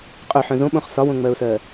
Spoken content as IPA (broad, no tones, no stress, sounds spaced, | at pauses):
qʼ œ ħ œ̃ z õ ɓ õ χ s ɒ w õ ŋ͡m ɜ ʊ̯ s ɜ